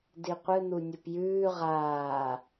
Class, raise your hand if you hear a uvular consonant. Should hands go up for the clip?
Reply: yes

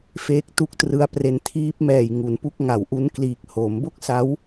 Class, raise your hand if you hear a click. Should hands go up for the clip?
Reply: no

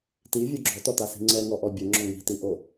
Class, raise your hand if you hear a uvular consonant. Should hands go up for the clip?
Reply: no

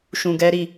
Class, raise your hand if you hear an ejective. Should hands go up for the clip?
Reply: no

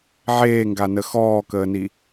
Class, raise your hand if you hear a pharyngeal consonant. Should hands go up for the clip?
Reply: yes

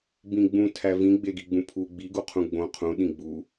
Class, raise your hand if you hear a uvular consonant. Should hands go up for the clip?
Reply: yes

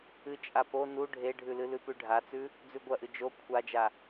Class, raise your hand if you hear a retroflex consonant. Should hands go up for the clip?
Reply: yes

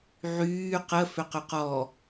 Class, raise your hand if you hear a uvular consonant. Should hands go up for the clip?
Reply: yes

